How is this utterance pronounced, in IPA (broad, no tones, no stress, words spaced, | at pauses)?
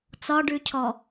t͡sɒɖʉcʰɔ